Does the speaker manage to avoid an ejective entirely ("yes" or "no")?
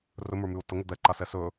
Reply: yes